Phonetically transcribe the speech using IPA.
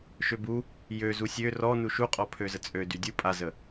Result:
ʃøbu | jø zusʲø rɔnu ʃuqʼɔ pʰøzət͡sʼø dydʲu pʼazə

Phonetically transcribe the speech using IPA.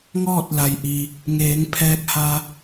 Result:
ŋɔː˥˨t̚la˩j ʔi˩ | ŋeː˩˧ŋpʰɛː˧k̚ha˧

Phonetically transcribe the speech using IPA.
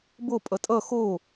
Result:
bo pʼʌtʼʌ xo

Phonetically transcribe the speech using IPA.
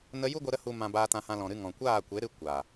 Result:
nə˧ ju˦ɡʷə˧ɾə˧ hu˨mã˨ baː˧tã˧ hã˧lɔ̃˨ɾɨ˧ ŋɔ̃˨kʷaː˦˨kʷe˨˦ɾɨ˧ kʷaː˨

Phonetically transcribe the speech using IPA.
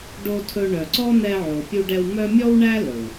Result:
ɖo˧tʰɵ˧ɳœ˨ ǀɔ˦n̪ɛ˧ ʕo˨pʲu˧ɖɛ˧w mœ˦ mʲɔ˦wɳæ˦ lɵ˨w

